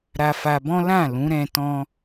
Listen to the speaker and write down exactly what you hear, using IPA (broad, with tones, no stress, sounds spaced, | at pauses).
ɾ a˧ f a˧ b ɔ̃˦ l ã˦˨ l ũ˨˦ ɾ ɛ̃˧ t ɔ̃˧